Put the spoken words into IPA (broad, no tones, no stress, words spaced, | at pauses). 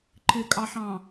ǃɪkʼɑħɑ̃